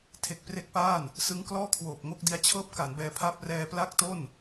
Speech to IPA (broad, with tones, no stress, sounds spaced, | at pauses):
tʰ e˨˩ k̚ p r e˦˥ k̚ p aː˥˩ n | s ɯ˦˥ ŋ k l ɔː˥˩ kʰ w oː˨˩ p̚ ŋ o˥˩ k̚ d i˧ a̯ t͡ɕʰ ɤː˥˩ p̚ k a˩˦ n b ɛː˧ pʰ a˥˩ p̚ r ɛː˧ p l a˥˩ k̚ t o˥˩ n